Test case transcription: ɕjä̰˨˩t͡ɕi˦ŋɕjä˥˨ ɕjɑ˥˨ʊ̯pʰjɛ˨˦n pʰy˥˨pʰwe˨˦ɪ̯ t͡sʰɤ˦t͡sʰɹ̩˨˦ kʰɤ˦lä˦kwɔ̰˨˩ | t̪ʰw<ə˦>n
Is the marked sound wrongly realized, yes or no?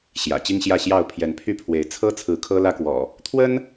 no